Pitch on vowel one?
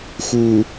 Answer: low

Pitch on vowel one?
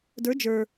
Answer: rising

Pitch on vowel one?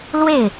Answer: falling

